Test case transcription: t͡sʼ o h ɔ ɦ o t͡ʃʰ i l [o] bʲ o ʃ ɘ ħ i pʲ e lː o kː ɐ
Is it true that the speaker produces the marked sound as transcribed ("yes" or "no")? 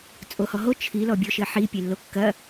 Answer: no